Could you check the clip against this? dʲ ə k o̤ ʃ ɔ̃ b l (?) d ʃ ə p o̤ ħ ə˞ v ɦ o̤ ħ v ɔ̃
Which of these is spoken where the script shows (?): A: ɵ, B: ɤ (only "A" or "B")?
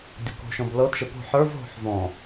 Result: B